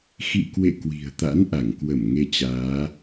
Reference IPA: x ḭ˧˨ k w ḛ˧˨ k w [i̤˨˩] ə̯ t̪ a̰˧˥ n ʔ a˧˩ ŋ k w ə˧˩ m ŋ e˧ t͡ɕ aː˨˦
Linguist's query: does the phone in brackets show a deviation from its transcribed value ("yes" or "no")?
no